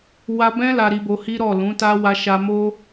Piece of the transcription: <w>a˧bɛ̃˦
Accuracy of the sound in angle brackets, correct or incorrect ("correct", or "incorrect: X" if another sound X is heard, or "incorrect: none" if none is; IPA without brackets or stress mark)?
correct